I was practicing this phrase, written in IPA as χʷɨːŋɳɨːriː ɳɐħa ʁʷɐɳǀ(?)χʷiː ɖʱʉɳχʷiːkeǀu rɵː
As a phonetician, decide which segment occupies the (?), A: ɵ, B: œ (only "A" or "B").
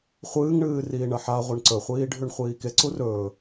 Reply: A